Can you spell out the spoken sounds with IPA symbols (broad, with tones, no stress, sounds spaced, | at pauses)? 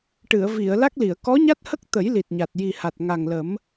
ʈ ɨ˨˩˨ ə̯ v i˨˩˨ ə̯ l a˦˥ k̚ l i˨˩˨ ə̯ k ɔ˧˥ ɲ a˦˥ t̚ h ə˦˥ k̚ t̪ ə˨˩˦ j l i˨˩ t̚ ɲ a˨˩ t̚ j i˨˩ h a˨˩ t̚ ŋ a˨˩ ŋ l ə˨˩˦ m